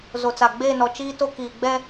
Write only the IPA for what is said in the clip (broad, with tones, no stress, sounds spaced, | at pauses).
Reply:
z o˨ t͡s a˨ ɡ͡b eː˦˨ n ɔ˨ t͡ʃ iː˦ t o˦ k iː˨ ɡ͡b ɛ˦